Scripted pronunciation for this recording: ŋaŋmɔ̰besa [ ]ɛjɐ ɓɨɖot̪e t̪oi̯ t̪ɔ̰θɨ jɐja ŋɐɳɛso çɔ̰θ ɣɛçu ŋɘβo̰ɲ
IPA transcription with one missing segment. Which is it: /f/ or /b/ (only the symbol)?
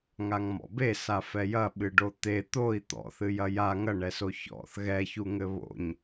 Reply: f